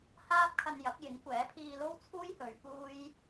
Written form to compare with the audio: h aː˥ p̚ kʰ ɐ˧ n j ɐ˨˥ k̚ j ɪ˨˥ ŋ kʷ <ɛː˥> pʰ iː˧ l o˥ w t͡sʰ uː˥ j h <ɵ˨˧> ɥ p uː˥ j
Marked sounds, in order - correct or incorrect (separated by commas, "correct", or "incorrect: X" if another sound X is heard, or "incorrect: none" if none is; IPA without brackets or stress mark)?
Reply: incorrect: ɛː˨˥, correct